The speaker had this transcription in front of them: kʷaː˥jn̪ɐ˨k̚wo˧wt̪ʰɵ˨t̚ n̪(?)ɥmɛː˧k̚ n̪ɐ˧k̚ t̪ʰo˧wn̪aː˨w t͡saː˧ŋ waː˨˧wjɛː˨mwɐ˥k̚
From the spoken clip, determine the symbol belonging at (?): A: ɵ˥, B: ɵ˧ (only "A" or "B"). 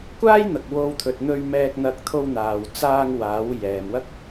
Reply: B